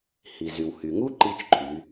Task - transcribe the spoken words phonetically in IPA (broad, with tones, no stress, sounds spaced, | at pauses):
h i˩ z y˩ w h y˩ ŋ u˥ ǃ i˧ t͡ʃ ǃʰ y˩˧